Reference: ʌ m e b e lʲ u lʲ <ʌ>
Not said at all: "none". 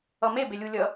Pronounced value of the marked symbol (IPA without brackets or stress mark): ʌ